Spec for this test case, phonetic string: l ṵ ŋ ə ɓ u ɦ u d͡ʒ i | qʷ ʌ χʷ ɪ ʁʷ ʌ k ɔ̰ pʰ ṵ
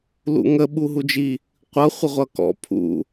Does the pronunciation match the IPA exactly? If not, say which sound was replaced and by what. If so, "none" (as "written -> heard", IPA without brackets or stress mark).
none